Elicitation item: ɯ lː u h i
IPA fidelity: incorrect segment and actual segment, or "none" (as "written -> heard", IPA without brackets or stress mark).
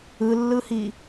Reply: u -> ɯ